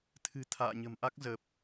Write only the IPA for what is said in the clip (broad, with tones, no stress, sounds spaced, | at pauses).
t̪ʰ ɨ̤˨˩ t̪ʰ a̰ː˧˨ ɲ ə̤˨˩ m ʔ a˦˥ k̚ z ə˨˩ p̚